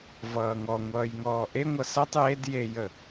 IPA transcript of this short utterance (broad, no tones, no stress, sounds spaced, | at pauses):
v ʌː ŋ ɔ ŋʷ ʌː j ŋ ɔː ʔ e ŋʷ ʌ s ʌ tˤ j e d j e j ə